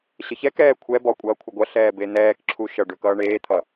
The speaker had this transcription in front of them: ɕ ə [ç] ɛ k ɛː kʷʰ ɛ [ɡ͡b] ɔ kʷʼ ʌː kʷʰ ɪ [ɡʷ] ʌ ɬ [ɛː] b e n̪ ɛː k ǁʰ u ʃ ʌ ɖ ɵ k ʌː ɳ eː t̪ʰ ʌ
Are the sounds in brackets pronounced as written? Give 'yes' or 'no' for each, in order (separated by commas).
yes, no, yes, yes